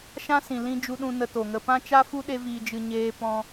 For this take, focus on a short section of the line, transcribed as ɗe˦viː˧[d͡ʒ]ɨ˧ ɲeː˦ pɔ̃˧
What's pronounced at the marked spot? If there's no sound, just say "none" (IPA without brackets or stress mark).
d͡ʒ